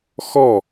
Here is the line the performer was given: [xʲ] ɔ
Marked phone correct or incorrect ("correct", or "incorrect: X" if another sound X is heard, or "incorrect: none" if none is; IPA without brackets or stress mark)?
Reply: incorrect: x